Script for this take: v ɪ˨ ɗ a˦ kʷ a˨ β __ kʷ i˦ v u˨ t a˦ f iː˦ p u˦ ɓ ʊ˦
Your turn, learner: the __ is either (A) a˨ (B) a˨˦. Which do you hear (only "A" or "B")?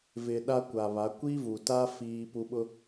B